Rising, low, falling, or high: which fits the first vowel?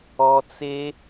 low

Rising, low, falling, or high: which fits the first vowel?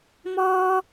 low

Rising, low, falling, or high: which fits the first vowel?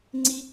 high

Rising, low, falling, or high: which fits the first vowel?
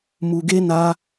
low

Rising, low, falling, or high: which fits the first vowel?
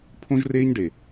high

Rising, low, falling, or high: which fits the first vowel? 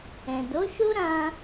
low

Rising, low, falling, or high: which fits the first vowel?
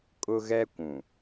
high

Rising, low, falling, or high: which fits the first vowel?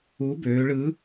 rising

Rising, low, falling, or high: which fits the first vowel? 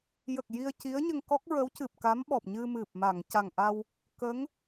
low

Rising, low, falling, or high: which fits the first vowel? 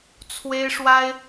high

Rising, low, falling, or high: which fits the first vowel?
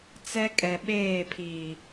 high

